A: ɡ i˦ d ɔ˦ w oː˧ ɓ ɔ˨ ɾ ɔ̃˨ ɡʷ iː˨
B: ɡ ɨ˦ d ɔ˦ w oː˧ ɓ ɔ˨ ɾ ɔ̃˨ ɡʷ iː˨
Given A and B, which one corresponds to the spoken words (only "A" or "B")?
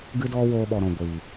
B